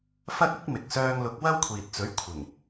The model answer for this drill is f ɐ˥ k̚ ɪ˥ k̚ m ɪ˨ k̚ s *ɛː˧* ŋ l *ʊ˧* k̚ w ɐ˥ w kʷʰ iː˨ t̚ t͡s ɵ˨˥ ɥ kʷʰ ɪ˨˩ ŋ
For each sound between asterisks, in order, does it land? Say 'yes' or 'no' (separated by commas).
no, no